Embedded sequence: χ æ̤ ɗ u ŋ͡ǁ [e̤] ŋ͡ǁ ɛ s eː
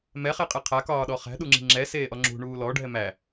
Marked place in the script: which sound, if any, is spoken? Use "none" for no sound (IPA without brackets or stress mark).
i̤